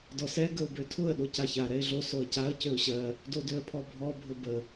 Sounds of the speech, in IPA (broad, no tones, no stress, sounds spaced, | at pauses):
d ɔ s ɛ ɡ ə ʊ̯ b ø tʰ ʊ ə̯ ɗ o c a ç a ɾ ɛ ɪ̯ ɮ o s o ə̯ c a ə̯ c ø ʊ̯ ɕ ɜ | d o d ø ə̯ pʰ ɔ bʱ ɔ bʱ ʊ b ə